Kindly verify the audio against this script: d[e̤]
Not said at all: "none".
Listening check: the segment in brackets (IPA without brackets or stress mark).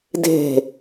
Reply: e̤